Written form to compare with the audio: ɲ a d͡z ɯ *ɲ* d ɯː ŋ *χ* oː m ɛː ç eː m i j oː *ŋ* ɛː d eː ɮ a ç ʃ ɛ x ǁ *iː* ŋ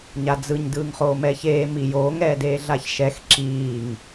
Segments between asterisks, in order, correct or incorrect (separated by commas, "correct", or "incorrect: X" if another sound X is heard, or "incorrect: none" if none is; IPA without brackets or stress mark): correct, correct, correct, correct